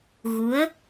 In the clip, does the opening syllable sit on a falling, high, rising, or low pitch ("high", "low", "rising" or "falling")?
rising